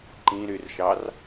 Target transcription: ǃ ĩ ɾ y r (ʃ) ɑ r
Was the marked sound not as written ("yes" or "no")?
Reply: no